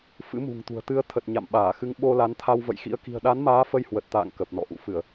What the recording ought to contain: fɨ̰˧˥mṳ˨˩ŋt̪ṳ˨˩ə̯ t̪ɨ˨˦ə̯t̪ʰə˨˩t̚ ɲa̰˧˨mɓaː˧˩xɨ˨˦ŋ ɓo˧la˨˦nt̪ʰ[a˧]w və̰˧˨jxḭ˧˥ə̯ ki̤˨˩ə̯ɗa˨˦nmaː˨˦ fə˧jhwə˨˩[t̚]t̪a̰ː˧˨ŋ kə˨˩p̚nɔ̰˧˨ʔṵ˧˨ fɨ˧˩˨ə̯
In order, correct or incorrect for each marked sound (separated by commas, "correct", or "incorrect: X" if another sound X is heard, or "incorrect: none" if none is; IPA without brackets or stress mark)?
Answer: correct, correct